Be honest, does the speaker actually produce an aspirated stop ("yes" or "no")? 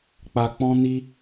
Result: no